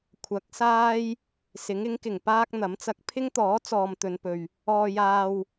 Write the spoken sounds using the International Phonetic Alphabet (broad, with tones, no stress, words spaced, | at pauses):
kʷʰɐ˨˥k̚saː˥j | sɪ˨˥ŋɪ˨˥ŋkɪ˨˩ŋ paː˥k̚ n̪ɐ˨˥mt͡sɐ˧k̚ pʰɪ˥ŋt̪ɔː˨˥ t͡sɔː˨m t̪ɵ˨˧npɵ˨ɥ | ɔː˧jaː˧w